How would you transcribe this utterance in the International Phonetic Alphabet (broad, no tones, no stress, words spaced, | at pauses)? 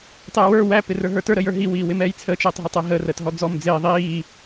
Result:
tˤɛːwə˞ wæ pɪrə˞ɦə˞tə˞ ɾəjə˞ɦi wiːwɪmɛːjt͡sʰə t͡ʃəːtˤɦətˤɛɦə rəːtɦɔd͡zɔm d͡zɪː ðˤiː